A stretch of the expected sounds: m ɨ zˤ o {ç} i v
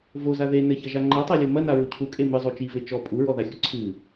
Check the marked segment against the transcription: incorrect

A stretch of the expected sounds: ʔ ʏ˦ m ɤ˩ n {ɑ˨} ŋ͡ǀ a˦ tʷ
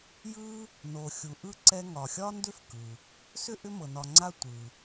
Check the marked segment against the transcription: incorrect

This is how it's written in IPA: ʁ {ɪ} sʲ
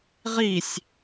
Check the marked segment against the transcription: incorrect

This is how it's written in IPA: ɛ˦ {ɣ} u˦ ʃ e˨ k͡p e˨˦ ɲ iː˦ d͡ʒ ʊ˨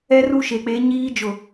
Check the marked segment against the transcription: incorrect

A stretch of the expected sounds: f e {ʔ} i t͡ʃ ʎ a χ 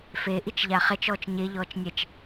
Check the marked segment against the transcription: correct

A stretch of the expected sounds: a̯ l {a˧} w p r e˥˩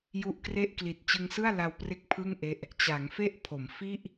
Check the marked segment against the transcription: correct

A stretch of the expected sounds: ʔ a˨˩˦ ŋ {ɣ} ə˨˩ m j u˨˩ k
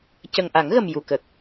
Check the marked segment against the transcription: correct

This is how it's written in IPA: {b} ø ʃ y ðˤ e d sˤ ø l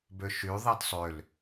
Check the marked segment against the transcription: correct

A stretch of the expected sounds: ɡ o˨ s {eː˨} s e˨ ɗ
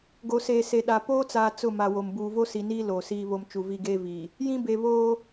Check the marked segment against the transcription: correct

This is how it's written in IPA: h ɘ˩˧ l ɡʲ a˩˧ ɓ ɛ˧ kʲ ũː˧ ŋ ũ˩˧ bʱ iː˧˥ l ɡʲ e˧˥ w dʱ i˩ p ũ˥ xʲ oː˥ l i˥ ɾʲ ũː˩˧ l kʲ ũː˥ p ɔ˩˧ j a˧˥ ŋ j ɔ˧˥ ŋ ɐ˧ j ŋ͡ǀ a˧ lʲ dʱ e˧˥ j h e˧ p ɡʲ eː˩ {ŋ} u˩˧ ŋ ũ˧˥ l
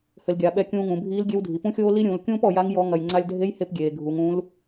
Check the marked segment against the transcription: incorrect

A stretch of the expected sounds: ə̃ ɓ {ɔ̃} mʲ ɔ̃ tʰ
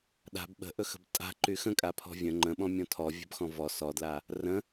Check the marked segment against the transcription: correct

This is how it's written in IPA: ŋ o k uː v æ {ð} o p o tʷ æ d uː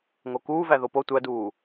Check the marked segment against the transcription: correct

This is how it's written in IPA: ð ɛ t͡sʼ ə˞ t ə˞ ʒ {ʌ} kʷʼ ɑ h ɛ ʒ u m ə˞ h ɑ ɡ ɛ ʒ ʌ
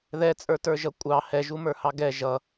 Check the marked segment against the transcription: correct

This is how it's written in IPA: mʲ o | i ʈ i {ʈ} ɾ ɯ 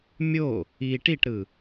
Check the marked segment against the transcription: correct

